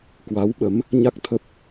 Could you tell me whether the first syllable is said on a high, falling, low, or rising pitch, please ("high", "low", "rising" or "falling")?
rising